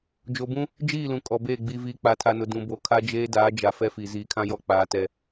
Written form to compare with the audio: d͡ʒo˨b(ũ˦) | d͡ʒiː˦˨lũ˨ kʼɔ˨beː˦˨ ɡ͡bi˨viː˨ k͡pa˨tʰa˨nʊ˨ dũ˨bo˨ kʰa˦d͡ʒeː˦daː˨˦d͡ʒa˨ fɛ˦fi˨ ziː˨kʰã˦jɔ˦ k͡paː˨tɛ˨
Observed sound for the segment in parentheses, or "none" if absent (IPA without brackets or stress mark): ũ˦